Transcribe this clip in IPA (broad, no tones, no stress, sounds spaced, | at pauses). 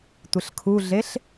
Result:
tʷ ɘ ɬ kʰ u ɮ e ɬ